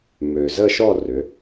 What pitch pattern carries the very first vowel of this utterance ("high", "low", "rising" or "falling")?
low